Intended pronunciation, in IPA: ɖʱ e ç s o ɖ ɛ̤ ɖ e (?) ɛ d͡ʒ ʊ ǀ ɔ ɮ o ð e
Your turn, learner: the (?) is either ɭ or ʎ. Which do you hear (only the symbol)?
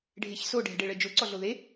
ɭ